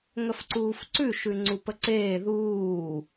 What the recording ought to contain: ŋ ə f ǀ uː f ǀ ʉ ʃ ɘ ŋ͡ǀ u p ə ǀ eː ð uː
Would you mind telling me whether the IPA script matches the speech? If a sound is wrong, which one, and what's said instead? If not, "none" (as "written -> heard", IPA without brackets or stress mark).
ɘ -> ʉ